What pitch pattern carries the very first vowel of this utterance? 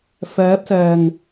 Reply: rising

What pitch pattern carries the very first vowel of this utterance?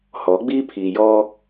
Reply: rising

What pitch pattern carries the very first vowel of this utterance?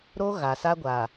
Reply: high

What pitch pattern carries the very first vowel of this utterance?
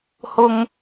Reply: high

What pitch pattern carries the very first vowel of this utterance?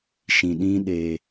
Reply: low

